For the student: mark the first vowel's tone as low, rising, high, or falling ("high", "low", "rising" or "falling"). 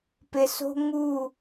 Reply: low